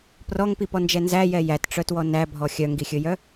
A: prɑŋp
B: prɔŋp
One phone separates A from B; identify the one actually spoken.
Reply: B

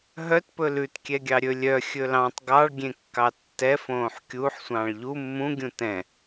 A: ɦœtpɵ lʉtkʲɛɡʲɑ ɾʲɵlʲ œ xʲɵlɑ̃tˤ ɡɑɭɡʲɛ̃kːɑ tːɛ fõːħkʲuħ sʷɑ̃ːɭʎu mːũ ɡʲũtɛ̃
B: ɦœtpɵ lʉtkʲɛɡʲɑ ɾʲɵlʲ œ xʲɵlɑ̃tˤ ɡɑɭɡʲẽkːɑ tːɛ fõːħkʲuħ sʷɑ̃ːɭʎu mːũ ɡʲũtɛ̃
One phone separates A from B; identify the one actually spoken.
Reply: B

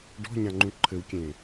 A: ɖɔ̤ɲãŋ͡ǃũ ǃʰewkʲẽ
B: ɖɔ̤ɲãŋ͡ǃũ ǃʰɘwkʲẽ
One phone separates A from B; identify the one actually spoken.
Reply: B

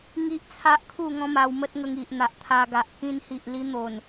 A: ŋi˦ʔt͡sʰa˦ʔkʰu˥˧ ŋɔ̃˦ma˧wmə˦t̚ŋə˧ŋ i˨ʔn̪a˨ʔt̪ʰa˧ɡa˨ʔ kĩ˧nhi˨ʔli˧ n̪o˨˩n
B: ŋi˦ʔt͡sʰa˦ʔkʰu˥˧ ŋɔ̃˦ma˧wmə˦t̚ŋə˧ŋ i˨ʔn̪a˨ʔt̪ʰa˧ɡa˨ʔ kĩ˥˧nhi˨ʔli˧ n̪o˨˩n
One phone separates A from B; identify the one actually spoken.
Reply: A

